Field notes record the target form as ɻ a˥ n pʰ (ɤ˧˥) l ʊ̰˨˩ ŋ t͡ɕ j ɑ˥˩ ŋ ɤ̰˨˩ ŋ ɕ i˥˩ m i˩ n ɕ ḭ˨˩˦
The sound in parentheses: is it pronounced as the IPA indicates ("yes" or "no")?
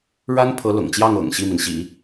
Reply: yes